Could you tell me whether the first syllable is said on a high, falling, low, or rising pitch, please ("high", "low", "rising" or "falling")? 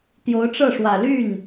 rising